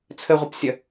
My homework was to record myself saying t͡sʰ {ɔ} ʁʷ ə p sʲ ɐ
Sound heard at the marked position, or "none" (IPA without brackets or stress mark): ə